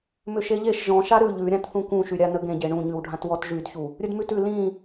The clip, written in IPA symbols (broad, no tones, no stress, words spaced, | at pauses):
mʏʃeʎeʃ ʒɔ̃ʃa ɾʉ ʎʉɾʲãt θũkũʃyɾʲa nəɡẽɟe ɳũɲʉwɖʱãt wɔtʒydçu | ɾʲɵdmʉtʉ lĩ